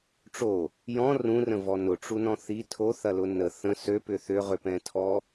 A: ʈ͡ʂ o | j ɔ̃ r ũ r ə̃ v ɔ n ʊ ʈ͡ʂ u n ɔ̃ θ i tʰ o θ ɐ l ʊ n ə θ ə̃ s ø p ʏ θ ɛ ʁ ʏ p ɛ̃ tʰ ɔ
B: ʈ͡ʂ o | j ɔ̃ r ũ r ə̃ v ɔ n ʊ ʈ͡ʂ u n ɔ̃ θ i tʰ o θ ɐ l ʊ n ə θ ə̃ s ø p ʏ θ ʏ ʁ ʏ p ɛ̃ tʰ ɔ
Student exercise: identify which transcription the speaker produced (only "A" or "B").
B